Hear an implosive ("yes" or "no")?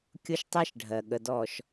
yes